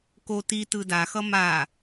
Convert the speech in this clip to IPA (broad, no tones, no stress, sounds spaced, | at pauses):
k o t i t ɯ d a x ʌ m a